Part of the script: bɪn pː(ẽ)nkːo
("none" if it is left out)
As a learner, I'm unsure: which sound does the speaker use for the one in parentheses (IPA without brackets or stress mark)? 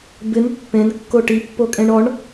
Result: ẽ